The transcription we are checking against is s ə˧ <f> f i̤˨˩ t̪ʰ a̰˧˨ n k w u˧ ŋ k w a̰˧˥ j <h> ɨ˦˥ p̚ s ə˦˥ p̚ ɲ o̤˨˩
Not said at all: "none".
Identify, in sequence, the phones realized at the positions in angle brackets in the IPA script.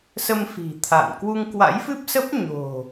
m, f

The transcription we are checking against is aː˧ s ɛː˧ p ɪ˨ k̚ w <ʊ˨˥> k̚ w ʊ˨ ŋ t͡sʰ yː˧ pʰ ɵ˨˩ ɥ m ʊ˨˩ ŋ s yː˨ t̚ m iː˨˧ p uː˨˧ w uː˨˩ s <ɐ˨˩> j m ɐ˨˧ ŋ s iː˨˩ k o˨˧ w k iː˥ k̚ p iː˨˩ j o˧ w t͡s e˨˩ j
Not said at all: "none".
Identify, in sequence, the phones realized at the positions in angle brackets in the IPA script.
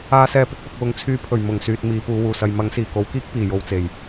ʊ˨, ɐ˧

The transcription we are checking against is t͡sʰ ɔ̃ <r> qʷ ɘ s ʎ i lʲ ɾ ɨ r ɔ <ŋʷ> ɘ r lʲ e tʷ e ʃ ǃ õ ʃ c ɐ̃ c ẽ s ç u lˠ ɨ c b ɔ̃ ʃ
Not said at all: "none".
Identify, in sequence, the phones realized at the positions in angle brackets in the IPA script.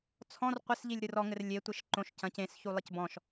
r, ŋ

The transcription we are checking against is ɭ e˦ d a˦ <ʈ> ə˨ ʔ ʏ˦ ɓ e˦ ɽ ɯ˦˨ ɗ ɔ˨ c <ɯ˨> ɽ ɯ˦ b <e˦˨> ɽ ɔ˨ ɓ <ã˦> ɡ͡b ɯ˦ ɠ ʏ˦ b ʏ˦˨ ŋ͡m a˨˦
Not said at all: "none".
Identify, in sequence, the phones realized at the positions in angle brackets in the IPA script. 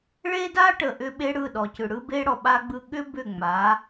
ʈ, ɯ˨, e˦, a˦

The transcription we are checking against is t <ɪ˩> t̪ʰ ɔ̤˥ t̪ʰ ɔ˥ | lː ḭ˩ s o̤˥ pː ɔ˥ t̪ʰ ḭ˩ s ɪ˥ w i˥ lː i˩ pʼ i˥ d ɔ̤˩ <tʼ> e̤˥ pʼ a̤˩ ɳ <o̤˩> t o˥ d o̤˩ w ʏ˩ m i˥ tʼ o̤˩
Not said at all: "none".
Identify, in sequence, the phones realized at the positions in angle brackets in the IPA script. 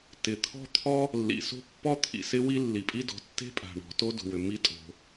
ɪ˩, tː, ɔ̤˩

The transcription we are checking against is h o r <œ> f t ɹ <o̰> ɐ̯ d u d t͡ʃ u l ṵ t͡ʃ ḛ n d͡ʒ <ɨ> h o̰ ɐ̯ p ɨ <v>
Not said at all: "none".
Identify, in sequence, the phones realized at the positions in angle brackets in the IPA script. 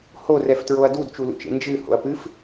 ɛ, o, ɨ, f

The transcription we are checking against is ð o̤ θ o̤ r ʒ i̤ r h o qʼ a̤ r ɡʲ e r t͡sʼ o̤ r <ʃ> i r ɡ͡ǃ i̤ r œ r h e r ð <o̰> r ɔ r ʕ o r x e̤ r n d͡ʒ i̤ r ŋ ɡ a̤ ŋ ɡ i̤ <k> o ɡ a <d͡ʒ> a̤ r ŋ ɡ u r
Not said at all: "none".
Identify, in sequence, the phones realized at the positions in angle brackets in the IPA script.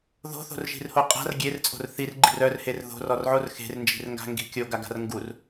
θ, o̤, kʲ, ɡ

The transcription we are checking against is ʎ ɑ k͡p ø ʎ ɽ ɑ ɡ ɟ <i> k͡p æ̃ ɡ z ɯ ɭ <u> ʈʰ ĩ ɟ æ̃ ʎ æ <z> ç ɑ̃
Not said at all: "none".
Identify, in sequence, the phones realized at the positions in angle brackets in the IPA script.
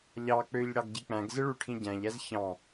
i, u, z

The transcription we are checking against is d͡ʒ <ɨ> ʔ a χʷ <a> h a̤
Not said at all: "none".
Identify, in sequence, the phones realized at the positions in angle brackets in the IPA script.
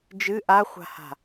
ɨ, a̤

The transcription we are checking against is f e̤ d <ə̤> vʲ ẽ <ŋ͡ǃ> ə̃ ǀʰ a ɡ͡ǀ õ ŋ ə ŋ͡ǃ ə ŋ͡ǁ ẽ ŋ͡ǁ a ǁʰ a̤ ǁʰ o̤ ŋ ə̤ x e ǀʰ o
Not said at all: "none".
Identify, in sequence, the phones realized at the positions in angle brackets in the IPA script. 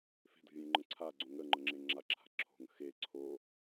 ə̤, ŋ͡ǃ

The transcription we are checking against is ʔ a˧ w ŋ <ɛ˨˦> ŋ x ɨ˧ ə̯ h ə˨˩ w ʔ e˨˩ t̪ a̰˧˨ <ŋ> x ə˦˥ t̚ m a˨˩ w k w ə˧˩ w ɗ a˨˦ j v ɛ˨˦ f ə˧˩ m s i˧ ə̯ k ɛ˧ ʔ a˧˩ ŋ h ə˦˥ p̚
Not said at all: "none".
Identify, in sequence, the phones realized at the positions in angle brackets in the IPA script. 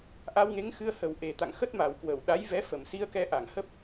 e˨˦, ŋ

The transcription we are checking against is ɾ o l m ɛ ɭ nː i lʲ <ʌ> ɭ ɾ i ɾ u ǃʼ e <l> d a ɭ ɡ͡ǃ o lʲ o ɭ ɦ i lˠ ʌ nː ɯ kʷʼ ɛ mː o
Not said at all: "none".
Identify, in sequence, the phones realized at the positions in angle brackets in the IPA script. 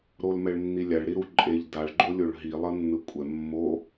a, ʎ

